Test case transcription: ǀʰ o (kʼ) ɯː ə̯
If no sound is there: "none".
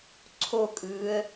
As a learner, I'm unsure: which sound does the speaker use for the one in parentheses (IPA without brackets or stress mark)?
kʼ